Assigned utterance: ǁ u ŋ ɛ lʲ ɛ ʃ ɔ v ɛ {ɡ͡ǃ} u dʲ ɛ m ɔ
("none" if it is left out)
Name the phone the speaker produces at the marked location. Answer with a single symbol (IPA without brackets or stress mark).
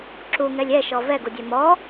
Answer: ɡ